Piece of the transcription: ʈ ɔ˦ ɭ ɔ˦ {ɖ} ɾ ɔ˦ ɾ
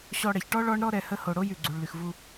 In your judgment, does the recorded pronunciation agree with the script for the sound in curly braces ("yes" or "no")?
no